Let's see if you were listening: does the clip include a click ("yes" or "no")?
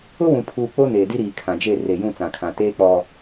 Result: no